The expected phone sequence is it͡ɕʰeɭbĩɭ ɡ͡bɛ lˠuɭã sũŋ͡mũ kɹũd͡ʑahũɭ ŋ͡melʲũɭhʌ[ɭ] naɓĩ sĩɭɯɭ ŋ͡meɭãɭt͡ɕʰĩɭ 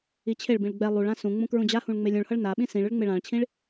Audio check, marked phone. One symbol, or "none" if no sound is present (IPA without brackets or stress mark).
ɭ